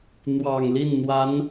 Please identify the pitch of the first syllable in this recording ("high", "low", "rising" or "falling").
low